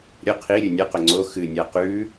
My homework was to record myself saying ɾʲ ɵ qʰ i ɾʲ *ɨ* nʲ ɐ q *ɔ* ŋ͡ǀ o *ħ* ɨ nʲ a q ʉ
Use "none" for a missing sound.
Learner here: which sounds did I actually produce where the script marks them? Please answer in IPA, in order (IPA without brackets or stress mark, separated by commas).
ʉ, ɵ, x